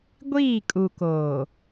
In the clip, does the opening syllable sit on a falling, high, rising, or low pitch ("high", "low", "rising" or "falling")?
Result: falling